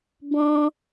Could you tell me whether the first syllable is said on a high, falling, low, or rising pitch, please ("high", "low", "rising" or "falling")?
high